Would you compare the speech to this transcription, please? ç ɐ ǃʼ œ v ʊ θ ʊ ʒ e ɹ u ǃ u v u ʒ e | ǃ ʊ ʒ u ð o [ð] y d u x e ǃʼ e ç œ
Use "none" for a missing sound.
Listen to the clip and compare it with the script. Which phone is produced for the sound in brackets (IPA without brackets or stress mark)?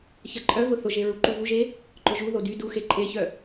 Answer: d